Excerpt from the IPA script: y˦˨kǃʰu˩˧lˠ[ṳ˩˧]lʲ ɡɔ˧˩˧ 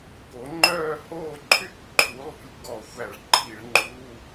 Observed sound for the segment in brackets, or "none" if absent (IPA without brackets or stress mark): ṳ˩˧